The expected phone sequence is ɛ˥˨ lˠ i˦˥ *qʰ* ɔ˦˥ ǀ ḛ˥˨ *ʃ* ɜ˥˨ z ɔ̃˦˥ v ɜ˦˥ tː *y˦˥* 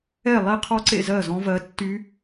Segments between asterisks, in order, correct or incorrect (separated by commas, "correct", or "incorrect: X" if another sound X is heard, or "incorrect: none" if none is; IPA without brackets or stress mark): correct, incorrect: z, correct